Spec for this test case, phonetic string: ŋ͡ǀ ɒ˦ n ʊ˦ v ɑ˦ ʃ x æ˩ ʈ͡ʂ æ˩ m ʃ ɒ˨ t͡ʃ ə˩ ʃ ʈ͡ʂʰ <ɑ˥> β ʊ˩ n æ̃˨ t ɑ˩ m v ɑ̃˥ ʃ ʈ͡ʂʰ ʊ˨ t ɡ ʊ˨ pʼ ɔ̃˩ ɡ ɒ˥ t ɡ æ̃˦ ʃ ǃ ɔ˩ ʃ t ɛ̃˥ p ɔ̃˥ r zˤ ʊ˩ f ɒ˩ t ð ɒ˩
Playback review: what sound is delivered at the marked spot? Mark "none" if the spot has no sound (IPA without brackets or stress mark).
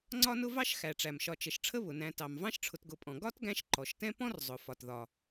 ə˥